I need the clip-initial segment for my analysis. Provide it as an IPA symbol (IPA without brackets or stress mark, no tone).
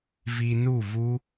v